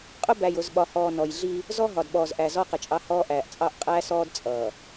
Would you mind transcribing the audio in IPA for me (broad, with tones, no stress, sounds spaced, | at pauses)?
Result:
qʼ ʊ˦ b æ˨ j ʊ˨ z ɓ ɒ˨ h ɔː˨ n ɔ˨ j ɮ i˦ | z ɔ˦ ɦ ɒ˨ d ɓ ɔː˨ z ʔ æ˨ z ɔ˦ q ɪ˨ t͡ʃʼ ɑ˦ h ɔː˦ ʔ æː˨ ʔ t͡sʼ ɑ˦ ʔ qʼ æː˦ s ɔː˦ d t͡sʼ ʌː˨